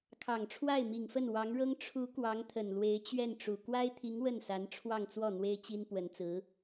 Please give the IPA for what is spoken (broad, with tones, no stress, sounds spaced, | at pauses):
kʰ ɑ˨˩ ŋ ʈ͡ʂʰ w a˥˩ ɪ̯ m i˨˩ ŋ f ə˥˩ n w ɑ˧˥ ŋ ɻ ɤ˥ ŋ ʈ͡ʂʰ u˧˥ k w ɑ˧˥ ŋ t̪ʰ ə˨˩ n l w e˧˥ ɪ̯ t͡ɕ ɥ ɛ˥˩ n ʈ͡ʂ u˨˩ k w a˥ ɪ̯ t̪ʰ i˧˥ ŋ w ə˥˩ n s a˧˥ n ʈ͡ʂʰ w ɑ˥˧ ŋ t͡s w ɔ˥˩ n̪ w e˥ ɪ̯ t͡ɕ i˥ n p w ə˧˥ n t͡s ɹ̩˧˥